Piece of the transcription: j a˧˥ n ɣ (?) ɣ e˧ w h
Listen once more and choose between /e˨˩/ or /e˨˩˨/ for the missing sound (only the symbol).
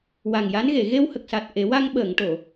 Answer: e˨˩˨